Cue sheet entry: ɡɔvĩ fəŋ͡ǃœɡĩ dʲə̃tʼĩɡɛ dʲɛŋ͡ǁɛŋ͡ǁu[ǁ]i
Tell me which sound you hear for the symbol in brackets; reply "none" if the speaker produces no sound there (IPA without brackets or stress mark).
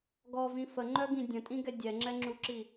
ǁ